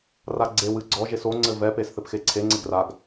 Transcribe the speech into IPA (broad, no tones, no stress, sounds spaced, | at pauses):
r a ɡ͡ǀ e w ɨ ɡ͡ǀ ɔ ʒ e s o ŋ͡ǀ ɘ v ɛ p e s θ ɘ p x e ǀʰ e ŋ͡ǀ e ɡ r a ɡ